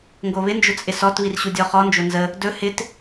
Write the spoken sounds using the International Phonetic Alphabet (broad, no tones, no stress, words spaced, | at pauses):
ŋɡoβɪnd͡ʒʊ t͡sʼɪsɔtβir ɕudʲɔχɔ nd͡ʒonzə | dɵ hɪt